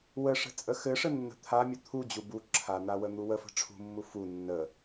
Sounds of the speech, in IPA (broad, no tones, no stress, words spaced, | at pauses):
wəʂə̤ t͡sʼəxɘʂə nːə̤t̪ʰamʲə t̪ʰud͡ʑu bu ǁʰan̪a wən̪uwəfə̤ ʈ͡ʂʰṳmːu fu nːə